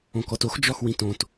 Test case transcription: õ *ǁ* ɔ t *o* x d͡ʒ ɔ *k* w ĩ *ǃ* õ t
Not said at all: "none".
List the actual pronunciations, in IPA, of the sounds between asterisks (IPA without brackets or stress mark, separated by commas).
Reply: k, o, x, t